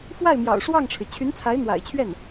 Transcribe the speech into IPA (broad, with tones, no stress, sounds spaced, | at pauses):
f w a˥˩ ɪ̯ m j ɑ̰˨˩ ʊ̯ ʂ w ɑ˥˩ ŋ ʈ͡ʂʰ ɻ̩˩ t͡ɕʰ y˧˥ n t͡sʰ a˧˥ ɪ̯ n̪ w a̰˨˩ ɪ̯ t͡ɕʰ ɥ ɛ˥˩ n